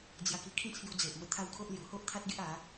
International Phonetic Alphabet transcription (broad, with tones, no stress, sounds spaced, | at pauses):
d͡z j a˧ k i˧ kʰ ĩ˥˧ t͡sʰ j u˧ d͡z e˨ ʔ m ə˧ t̪ʰ a˦ w kʰ o˦ ʔ l j u˨˩ h o˦ ʔ t̪ʰ a˦ t̚ ɡ e˦ ʔ a˨˦